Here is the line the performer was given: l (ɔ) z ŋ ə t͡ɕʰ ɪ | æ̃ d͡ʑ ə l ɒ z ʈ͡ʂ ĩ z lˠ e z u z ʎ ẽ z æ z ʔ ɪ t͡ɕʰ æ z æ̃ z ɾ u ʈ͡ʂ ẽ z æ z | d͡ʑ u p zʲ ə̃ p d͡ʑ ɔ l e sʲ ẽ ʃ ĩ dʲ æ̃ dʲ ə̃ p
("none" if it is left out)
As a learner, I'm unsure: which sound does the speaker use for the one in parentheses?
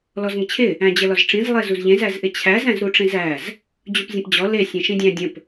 ɔ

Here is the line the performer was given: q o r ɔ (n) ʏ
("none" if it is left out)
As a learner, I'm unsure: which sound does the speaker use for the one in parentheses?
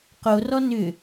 n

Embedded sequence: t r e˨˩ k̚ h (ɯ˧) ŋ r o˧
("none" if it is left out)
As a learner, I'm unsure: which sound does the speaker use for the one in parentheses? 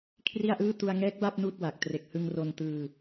ɯ˧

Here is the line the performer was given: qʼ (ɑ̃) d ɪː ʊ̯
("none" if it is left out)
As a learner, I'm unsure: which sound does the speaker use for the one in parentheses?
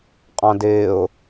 ɑ̃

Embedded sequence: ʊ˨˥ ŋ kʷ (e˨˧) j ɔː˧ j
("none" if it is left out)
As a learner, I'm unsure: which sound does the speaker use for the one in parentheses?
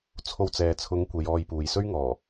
e˨˧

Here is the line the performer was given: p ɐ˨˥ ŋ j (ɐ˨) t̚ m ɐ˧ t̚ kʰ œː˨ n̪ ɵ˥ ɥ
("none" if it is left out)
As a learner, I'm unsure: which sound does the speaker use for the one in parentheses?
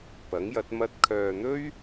ɐ˨˥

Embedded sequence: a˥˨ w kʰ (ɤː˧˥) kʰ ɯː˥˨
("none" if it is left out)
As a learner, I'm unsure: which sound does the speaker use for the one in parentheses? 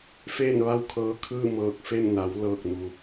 ɤː˧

